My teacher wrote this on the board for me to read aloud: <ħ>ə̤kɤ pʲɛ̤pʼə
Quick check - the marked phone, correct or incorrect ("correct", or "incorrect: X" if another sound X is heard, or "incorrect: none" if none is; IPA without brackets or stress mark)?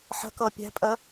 correct